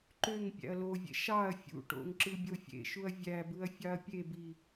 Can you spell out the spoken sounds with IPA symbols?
ǃøŋ pʲæ̰ɐ̯lovʲḛ ʃɑɐ̯ fʲṵʈo̰ŋ ǁɯbʲofʲḛʃuɐ̯ vʲæbɯɐ̯ fʲɑɐ̯pʲebi

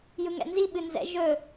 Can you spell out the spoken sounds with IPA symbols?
jɯŋɛ̰nzi ɓɨnzɛ̰ ʒɵ

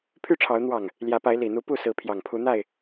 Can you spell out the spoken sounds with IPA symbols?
pʰy˥˨ʈ͡ʂʰɑ˨˦ʊ̯ n̪wɑ˨˩ŋ | ljä˨˦pa˨˦ɪ̯ li˨˩n̪u˨˦ pu˥˨sɹ̩˨˦ pʰjɑ˨˩ŋpʰu˨˦n̪a˥˨ɪ̯

